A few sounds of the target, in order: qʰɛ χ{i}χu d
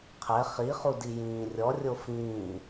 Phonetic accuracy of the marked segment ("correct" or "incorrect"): correct